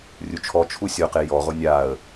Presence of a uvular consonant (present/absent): present